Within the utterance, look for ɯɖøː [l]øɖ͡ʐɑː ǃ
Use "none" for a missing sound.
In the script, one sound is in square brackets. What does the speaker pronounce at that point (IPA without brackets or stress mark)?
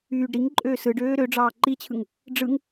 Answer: ɾ